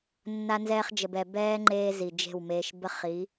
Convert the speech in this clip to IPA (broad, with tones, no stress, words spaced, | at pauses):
nːa˧ nzɛː˧χd͡ʒə˨bɛ˨ bɛː˦ ŋ͡ǃeː˦zi˨d͡ʒe̤˦˨wmeː˧ʃ bə˦χ i˨˦